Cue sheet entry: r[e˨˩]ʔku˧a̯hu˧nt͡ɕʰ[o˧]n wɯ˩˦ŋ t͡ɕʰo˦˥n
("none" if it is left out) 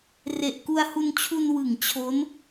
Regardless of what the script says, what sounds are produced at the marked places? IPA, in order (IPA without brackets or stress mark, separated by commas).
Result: e˨˩, u˧